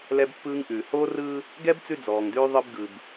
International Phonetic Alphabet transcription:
l ɛ˦ b pː ɯː˦ ŋ ʔ ʉː˨ h oː˦ r ɯː˦ | ɡ ɛ˦ b t͡s ʉ˦ d͡z ɔː˨ ŋ d ʉː˦ ðˤ ɯ˦ b ɡ ɯ˨ b

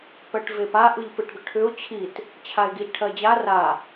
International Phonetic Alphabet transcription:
p ɜ ʈ v e p a ʔ ɯ ʎ p ɯ ʈ ɡ ʏ ʈʰ ʏ ʊ̯ t͡ɕʰ i t | t͡ɕʰ a ɪ̯ ɡ i ʎ ʈʰ ɜ d͡ʑ a r a

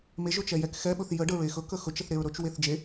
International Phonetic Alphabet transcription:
m e ʒ ɵ t͡ʃ ɛ j ɛ k x ɛ ɓ ɵ θ j ə ɖ ə ɹ e x ɵ k ə x ɵ t͡ʃ ə θ ɾ e ɹ ɾ ɵ t͡ʃ w e θ d͡ʒ e

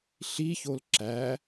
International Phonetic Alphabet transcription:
ɬ i ç o l ǁ æ

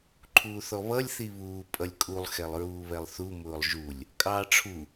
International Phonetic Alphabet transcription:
ǃʰ uː θ ɔ β ʌ lʲ θ i β uː pʼ ʌ lʲ kʼ u lˠ x ɛ lˠ ɹ uː β ɛ lˠ θ u m ʊː lˠ ʒ u lʲ | kʼ ɑː ʈ͡ʂʰ u

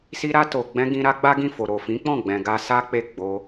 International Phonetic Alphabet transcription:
s i˧ ɾ a˧ t o˨ ɡ͡b ɛ̃˧ ɡ ĩ˧ ɾ a˦ ɡ͡b a˦ ɡ ĩ˦˨ f o˨ ɾ o˨ f ĩ˨˦ k͡p ɔ̃˦˨ ɡ͡b ɛ̃˨ ɡ a˧ s a˦ k͡p e˦˨ ɡ͡b o˧

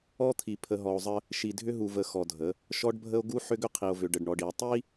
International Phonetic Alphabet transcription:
ɔ˦ t̪ʰ i˨ pʰ ə˨ ɦ ɔ˨ o̯ zˤ ə˦ | ʃ i˨ dʱ ʏ˦ ɦ u˨ v ə˨ x ɔ˨ dʱ ə˨˦ | ʃ ɔ˦ ɖ bʱ ə˦ o̯ ɡ u˦ ħ ʏ˦ ɡ ʏ˦ qʰ i˨ o̯ v ʏ˨ ɖ ə˨ ɖ ɳ ɔ˨ ɖ i˨ o̯ tˤ i˦

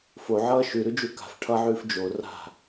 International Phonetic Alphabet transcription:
f o ʕ ʌː ʃ ʉ ɾ ʉ d͡ʒ u k a̤ f ʈʰ ʌ ʕ ʉː f d͡ʒ o r a̤

